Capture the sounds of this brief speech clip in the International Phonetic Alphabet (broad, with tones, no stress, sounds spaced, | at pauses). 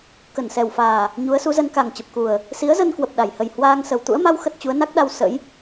k ə˧˩ n s ɛ˨˩ w f aː˨˩ | ɲ u˨˦ ə̯ s u˨˦ z ə˧ n k a˨˩ ŋ t͡ɕ ə˨˩ p̚ k u˨˩ ə̯ | s i˨˦ ə̯ z ə˧ n k w ə˨˩ p̚ ɗ a˧˩ j h ə˨˩ j h w aː˧ ŋ s ə˨˩ w t̪ ṵ˧˥ ə̯ m a˧ w x ə˦˥ t̚ t͡ɕ u˨˦ ə̯ n a˦˥ k̚ ɗ a˧ w s ə̰˧˥ j